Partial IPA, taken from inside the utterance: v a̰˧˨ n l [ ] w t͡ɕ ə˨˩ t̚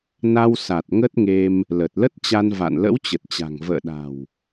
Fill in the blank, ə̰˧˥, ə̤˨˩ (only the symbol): ə̰˧˥